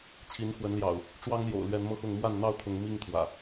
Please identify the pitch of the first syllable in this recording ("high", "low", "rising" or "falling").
rising